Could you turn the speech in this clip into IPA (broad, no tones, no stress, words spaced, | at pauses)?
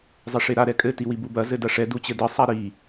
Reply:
zˤɘʂeɾa ɾɛkʼɘ tiwibubɐ zɘdɐʂɛ dut͡ɕɘdɘ sˤaɾi